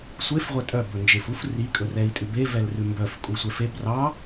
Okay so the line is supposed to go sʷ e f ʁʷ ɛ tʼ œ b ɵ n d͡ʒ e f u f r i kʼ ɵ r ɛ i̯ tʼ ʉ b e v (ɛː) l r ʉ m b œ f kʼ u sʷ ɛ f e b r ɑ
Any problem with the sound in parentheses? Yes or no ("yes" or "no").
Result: yes